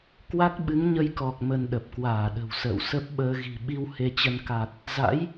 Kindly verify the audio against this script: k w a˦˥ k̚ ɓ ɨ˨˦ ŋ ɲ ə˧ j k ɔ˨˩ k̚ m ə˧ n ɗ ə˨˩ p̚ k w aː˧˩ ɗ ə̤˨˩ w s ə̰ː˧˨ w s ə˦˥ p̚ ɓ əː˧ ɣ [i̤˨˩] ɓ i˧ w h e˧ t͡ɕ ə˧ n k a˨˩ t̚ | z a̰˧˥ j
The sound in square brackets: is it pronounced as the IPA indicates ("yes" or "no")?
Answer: yes